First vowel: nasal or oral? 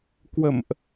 oral